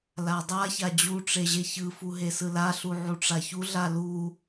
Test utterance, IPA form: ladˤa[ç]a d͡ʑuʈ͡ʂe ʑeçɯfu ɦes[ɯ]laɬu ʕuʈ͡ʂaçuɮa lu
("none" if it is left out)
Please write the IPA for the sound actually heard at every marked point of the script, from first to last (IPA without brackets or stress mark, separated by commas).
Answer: ç, ɯ